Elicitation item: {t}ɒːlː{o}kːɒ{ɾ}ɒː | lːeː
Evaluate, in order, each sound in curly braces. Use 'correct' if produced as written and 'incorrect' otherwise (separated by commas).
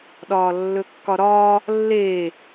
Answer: incorrect, incorrect, correct